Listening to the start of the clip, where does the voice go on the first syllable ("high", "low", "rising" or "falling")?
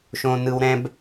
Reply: high